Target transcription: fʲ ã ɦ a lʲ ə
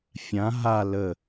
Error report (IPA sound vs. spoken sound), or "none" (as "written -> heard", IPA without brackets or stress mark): lʲ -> l